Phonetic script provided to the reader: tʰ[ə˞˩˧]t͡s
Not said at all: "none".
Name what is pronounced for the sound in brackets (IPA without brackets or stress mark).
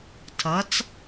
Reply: ʌ˩˧